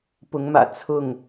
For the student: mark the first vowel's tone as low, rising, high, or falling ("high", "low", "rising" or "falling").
rising